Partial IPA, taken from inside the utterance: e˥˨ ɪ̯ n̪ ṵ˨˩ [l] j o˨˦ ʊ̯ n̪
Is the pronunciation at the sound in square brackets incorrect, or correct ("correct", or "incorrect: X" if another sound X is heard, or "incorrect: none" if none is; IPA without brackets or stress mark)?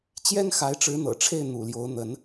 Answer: correct